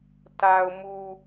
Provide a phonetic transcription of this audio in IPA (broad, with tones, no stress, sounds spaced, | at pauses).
t a˨ ʊ̯ m u˨